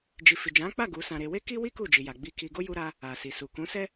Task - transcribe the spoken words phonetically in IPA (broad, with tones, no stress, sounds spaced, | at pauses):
d͡ʒ i˨ f i˨ d͡ʒ ã˨˦ k͡p a˦˨ ɡ u˨˦ s ã˧ ɾ e˧ w e˦ k i˦ w i˦ k u˦˨ d͡ʒ i˨ j a˨ ɡ͡b i˧ k i˧ ɡ o˦ j u˦ ɾ a˦ | a˨ s i˨ s u˨ k ũ˨˦ s ɛ˦